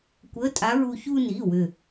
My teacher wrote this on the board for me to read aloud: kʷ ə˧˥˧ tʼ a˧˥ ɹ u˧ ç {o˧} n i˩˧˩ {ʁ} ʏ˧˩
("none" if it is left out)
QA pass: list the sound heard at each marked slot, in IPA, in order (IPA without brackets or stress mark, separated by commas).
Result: u˧, w